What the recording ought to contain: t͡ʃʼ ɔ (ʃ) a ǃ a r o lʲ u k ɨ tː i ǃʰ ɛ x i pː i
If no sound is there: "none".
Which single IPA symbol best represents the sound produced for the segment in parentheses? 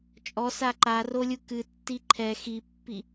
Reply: s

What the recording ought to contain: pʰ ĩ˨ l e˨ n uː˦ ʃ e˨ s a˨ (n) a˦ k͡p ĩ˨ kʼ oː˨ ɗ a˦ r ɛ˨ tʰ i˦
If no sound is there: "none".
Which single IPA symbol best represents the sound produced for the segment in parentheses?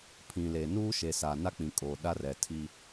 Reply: n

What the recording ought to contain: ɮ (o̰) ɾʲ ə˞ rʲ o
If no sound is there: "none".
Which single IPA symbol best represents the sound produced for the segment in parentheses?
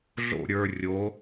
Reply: o̰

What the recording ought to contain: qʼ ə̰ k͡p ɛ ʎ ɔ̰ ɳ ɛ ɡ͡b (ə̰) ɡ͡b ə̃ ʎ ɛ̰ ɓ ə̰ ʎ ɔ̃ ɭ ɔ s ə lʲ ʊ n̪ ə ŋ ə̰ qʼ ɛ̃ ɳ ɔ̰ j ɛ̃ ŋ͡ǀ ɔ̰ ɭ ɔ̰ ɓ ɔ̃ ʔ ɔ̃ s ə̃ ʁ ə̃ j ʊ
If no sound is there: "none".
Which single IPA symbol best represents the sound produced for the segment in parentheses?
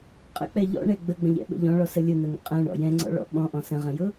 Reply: ə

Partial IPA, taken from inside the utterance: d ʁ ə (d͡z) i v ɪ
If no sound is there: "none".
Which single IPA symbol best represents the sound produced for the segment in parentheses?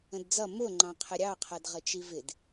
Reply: t͡ʃ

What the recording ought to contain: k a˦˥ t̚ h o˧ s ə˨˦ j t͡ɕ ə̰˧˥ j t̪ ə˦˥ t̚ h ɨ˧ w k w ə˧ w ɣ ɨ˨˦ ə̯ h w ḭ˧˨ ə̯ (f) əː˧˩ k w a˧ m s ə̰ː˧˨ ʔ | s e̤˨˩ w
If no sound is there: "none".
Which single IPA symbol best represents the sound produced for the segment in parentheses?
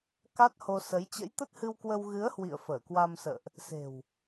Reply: f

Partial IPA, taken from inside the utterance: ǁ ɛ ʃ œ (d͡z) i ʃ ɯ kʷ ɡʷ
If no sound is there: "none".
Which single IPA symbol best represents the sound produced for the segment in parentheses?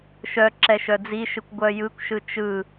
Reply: d͡z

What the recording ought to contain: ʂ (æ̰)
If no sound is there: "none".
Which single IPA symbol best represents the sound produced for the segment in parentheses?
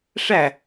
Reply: æ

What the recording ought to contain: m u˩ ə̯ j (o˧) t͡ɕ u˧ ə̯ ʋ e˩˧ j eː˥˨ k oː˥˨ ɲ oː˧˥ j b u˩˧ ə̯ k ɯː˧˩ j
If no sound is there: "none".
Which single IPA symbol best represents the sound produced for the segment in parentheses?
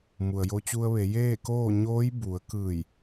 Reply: o˧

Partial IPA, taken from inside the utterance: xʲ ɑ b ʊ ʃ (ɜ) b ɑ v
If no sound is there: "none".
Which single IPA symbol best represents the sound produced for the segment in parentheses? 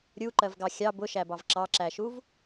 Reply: æ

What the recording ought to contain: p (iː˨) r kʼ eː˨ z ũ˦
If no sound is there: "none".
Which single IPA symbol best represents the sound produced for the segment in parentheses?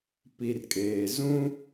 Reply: i˨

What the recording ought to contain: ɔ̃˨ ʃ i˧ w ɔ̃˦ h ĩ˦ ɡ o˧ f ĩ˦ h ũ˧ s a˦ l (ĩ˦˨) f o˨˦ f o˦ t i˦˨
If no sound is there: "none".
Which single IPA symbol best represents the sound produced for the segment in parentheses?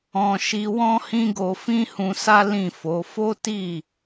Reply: ĩ˦˨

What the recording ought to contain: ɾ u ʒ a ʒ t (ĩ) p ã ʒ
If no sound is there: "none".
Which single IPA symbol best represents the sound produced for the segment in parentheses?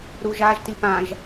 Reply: i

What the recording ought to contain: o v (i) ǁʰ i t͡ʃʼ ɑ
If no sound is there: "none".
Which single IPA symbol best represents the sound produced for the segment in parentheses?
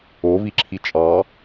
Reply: i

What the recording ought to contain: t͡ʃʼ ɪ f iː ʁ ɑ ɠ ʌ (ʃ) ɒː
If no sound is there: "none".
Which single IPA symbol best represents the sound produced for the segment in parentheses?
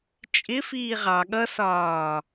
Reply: s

